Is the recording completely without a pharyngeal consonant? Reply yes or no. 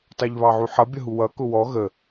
no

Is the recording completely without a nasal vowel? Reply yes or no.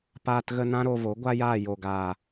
no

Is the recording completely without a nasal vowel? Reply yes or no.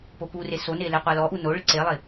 yes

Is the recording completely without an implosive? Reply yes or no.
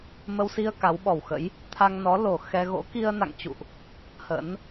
no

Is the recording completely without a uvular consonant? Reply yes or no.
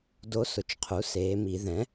no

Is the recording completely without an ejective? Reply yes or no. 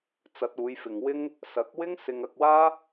yes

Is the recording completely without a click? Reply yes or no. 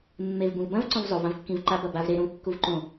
no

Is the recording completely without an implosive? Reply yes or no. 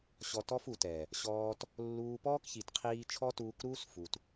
yes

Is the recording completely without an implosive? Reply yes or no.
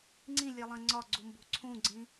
yes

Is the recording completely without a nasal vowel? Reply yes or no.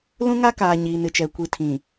no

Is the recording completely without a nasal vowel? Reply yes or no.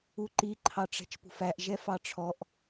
yes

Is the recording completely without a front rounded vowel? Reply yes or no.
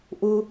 yes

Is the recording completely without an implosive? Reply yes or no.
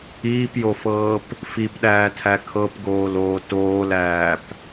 no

